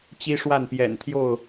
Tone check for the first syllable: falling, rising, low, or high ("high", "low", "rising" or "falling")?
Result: high